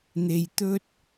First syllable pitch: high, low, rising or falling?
low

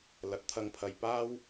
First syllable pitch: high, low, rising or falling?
rising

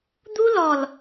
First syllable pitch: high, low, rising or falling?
high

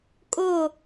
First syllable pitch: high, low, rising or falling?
falling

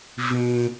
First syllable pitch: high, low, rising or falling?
high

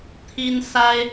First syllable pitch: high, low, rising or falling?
high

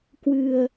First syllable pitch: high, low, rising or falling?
low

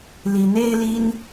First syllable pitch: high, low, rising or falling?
rising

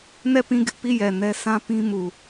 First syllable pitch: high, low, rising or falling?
falling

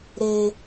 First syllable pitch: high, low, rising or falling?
high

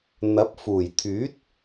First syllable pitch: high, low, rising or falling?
rising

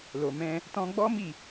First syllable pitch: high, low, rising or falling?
low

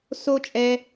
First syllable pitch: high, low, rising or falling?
high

